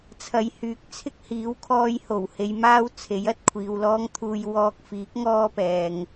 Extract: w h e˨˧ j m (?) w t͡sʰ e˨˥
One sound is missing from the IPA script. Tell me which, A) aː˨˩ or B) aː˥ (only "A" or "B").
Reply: B